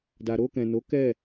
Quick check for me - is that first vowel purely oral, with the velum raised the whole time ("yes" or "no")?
yes